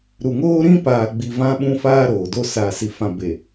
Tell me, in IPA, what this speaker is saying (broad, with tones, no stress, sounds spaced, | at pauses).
ɾ u˨ ŋ oː˦ ɾ ĩ˦ p aː˨ ɡ͡b i˨ v ã˦ ɓ ũ˦ f aː˦ ɾ oː˨ d o˦ s aː˦ s i˦ f ã˦ b e˨